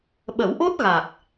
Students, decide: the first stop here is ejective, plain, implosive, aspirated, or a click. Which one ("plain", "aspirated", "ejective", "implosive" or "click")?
implosive